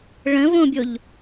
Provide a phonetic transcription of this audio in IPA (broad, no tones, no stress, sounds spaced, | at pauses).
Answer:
ɭ ə̃ v õ bʲ o ʎ